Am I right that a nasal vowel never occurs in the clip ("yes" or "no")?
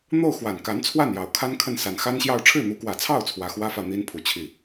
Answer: yes